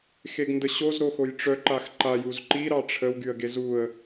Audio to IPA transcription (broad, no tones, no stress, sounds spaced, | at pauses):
x e ɡ n d ə ɕ o z ɾ o x o j ʈ͡ʂ œ ǃ a x ǃ a j u z ǃ i ɾ ɑ ʈ͡ʂʰ ə w ɡ y ə̯ ɡ e z u ə̯